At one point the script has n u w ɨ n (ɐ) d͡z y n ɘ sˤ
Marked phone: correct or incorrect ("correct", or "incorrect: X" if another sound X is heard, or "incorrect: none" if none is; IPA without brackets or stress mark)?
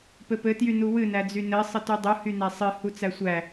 incorrect: æ